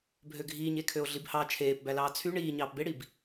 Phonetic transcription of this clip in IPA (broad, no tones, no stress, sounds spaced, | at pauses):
bʱ ø ɡʱ iː ɲ e kʰ ø o̯ ɮ i b h ɑ t͡ʃʰ eː p b æ l ɑː t͡sʰ y ɳ iː ɲ ɑː p b e ɽ i b